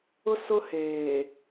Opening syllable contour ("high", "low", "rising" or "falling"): high